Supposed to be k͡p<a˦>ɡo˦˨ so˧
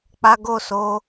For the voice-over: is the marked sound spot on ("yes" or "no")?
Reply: yes